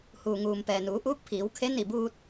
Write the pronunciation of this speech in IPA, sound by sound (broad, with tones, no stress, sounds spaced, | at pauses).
h uː˩ ŋ uː˩ m p ɛː˩ n uː˩˧ ʔ uː˧˥ k̚ pʰ iː˩˧ w kʰ e˧˥ n i˧˩ b uː˧ t̚